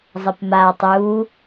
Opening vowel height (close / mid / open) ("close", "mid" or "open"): mid